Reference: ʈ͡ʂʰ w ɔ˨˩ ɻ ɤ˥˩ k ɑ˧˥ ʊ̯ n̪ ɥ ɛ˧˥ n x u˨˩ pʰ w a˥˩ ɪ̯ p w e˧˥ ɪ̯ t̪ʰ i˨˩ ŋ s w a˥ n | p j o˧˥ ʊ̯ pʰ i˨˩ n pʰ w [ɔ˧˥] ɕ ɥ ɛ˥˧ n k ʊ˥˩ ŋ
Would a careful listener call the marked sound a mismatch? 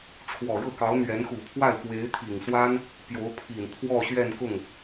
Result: yes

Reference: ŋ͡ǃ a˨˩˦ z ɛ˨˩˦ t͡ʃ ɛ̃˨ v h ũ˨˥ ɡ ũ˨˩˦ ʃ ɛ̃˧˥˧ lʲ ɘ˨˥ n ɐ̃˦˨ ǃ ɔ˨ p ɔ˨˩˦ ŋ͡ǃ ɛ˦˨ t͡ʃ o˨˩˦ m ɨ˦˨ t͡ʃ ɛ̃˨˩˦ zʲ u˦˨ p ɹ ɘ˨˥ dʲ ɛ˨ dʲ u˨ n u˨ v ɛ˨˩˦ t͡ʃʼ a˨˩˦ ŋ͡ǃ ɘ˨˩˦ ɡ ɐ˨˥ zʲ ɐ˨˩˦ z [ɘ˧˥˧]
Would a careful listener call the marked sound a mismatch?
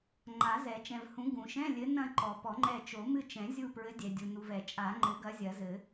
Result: yes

